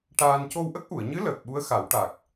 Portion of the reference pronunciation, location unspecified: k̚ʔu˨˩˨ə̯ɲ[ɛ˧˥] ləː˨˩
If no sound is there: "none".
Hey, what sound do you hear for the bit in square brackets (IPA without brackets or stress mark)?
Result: ɨ˧˥